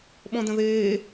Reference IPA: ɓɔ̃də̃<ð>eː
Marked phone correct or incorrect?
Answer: correct